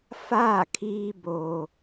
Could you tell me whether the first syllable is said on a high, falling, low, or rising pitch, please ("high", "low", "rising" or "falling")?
falling